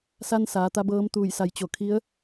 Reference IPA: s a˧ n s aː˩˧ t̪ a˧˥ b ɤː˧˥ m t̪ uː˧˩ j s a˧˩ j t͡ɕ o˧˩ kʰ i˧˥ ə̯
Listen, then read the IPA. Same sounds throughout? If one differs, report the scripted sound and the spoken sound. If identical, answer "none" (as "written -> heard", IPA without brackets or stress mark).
none